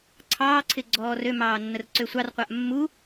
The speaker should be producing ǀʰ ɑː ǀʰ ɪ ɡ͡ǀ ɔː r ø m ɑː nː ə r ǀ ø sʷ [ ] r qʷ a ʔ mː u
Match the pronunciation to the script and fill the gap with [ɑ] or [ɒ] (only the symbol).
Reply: ɑ